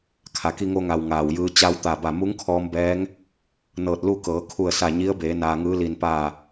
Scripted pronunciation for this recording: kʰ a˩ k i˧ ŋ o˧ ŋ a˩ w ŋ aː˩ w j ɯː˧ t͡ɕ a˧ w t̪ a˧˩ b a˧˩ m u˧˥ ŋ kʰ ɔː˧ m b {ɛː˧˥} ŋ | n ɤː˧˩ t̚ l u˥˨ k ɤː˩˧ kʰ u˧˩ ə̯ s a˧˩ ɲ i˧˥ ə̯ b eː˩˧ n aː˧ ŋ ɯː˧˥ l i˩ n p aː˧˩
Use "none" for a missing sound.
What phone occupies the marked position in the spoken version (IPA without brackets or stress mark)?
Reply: ɛː˧˥